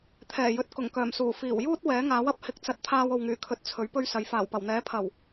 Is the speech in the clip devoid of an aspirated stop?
no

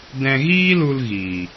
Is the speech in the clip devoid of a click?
yes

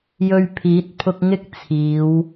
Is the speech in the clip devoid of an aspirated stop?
no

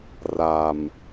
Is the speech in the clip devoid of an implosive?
yes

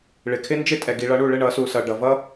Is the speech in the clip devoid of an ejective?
no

